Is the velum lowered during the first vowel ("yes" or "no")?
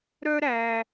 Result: no